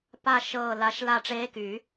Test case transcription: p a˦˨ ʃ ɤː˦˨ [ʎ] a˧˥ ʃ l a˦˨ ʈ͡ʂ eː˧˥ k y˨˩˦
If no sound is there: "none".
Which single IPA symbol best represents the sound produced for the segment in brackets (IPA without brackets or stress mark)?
l